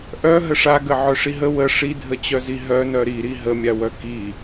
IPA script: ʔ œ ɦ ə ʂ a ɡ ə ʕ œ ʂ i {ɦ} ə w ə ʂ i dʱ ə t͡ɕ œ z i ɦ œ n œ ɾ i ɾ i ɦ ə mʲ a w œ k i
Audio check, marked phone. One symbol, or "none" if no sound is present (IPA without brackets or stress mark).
ɦ